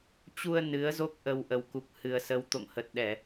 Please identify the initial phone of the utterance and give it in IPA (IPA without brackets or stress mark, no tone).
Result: t͡ɕ